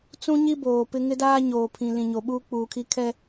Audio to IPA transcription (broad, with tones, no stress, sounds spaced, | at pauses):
t͡s ũ˦ ɲ i˦ b oː˨ p ɪ˦ ŋ ɪ˦ d aː˦ ɲ oː˨ pʰ ĩ˨ l ĩ˨ ɲ o˨ ɓ uː˦ k͡p uː˨ kʰ i˦ kʰ ɛ˦